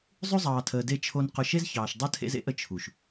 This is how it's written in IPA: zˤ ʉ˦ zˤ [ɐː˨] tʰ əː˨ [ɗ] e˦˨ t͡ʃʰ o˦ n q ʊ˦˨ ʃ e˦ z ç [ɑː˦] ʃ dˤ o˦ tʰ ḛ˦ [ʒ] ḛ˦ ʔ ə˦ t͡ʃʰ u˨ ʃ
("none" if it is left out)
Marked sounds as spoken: ɑː˨, d, ɑː˨, z

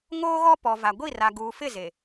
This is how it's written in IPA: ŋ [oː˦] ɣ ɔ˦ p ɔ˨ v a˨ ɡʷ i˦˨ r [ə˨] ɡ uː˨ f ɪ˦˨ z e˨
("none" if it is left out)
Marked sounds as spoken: oː˦, a˨

